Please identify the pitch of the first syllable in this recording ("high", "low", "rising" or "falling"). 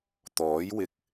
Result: rising